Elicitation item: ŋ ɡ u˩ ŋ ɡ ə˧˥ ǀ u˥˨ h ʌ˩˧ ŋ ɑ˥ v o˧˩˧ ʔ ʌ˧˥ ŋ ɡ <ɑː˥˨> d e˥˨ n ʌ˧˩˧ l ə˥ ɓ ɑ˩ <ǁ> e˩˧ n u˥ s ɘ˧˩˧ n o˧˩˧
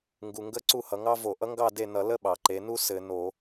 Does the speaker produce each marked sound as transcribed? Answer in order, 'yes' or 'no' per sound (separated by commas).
no, no